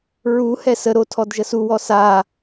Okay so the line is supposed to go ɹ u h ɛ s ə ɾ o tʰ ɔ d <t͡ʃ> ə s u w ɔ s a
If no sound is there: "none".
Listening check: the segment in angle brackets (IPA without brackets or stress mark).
ʒ